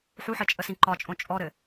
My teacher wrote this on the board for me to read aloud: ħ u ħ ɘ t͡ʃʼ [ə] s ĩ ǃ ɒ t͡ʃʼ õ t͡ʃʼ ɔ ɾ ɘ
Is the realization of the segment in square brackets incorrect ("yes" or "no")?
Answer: no